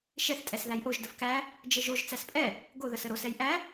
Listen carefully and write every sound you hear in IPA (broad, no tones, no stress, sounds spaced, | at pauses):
ʃ ɛ θ tʼ ɛ s ð æ j ʔ o ʒ d ə f k æ | d͡ʒ ə ʒ o ʒ t͡s æ s pʼ ɛ | ɡ o ð ə s ə ɾ o s ɛ j ʔ æ